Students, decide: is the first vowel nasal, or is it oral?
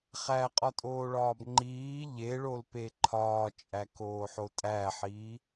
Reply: oral